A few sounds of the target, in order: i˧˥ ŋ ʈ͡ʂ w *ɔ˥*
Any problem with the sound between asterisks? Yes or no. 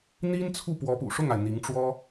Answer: no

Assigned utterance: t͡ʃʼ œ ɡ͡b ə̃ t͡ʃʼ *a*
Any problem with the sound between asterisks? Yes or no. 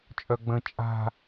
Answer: yes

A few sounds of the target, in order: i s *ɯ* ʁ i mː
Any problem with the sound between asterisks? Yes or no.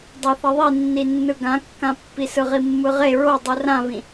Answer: no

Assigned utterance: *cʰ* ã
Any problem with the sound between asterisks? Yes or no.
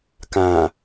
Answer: yes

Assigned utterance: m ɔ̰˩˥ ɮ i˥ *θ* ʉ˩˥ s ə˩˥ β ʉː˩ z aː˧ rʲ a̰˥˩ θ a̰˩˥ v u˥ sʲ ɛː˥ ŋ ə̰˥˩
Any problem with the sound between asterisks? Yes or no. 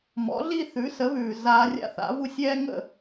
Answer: no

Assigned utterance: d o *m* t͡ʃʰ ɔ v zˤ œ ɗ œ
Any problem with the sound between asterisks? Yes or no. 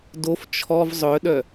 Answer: yes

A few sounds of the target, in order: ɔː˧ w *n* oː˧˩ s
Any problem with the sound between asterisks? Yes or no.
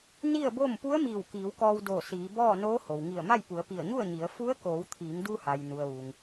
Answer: yes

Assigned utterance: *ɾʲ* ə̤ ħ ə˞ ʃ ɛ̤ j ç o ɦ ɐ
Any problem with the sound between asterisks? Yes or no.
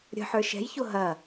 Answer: no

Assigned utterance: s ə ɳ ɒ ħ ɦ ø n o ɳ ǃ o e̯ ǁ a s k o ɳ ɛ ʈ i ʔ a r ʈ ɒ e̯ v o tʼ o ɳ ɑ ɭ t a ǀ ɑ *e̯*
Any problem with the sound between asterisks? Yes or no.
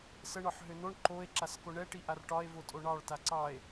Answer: no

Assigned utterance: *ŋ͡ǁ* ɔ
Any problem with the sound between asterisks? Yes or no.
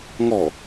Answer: yes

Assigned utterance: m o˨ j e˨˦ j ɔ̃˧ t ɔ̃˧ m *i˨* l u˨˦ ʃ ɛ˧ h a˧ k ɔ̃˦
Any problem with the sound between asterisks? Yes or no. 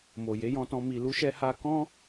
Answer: no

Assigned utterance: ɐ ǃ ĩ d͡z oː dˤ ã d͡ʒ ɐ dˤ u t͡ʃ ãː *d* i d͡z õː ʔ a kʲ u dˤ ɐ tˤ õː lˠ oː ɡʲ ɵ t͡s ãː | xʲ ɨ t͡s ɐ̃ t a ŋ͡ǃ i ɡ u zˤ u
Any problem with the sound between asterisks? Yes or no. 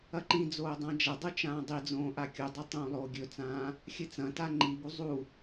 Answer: yes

